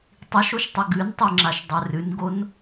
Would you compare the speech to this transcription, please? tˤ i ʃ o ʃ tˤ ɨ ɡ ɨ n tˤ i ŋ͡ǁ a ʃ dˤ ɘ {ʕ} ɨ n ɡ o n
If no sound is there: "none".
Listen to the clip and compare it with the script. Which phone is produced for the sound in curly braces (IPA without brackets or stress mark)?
r